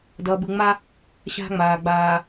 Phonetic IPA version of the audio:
d ʌː˨ b ɯ˨ ŋ͡m a˦ | ɕ a̤˦ ŋ͡m aː˨ ɡ͡b aː˨

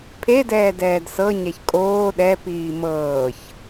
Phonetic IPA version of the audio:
pʰ e d ɛː d ɛː d s ɤ ɲ ɛ ç kʼ oː ɗ ɛ p iː m ɤː ç

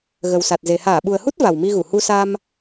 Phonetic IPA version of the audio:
ɣ ə˨˩ w s a˨˩ t̚ z e˨˩ h aː˧˩ ɓ u˨˩ ə̯ h u˦˥ t̚ v a˨˩ w m i˧ ɣ u˧˩ h u˧ s a˧ m

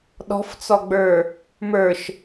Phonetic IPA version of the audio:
ɗ ɔ̤ f t͡s ɔ ɡ͡b ə˞ | m ə˞ ʃ

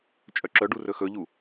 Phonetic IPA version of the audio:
t͡ʃʼ œ ǁ œ ɖ u r ɵ x ɵ ʎ u

